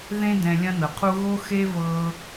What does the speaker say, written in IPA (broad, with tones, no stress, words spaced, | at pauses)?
ðẽ˥ dɛ̃˧lʲɐ̃˥nɤ˩qʰu˥ ɣo˥ xe˥ vɤ˧